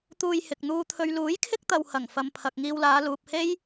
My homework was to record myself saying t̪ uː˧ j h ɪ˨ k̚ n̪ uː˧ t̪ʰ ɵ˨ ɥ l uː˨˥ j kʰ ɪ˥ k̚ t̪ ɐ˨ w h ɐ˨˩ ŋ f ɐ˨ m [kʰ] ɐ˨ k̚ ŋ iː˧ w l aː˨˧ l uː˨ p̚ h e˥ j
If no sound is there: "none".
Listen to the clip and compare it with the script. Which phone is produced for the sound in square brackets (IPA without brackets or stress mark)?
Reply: pʰ